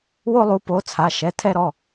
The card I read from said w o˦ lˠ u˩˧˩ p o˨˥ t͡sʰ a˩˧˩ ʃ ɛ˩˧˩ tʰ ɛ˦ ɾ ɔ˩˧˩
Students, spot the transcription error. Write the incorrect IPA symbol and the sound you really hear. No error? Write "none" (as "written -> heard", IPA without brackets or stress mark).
none